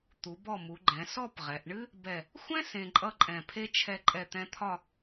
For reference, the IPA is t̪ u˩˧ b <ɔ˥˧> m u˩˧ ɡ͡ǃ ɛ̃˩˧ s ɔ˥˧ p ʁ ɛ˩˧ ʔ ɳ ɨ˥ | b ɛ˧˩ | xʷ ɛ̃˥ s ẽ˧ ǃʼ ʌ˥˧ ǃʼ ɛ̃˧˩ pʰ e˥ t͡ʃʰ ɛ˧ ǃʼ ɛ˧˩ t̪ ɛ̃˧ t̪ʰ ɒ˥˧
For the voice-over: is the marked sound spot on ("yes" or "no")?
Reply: no